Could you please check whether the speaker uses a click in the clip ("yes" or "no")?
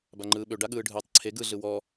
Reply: yes